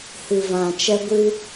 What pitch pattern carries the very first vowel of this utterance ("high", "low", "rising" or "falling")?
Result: low